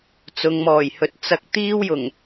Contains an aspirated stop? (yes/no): no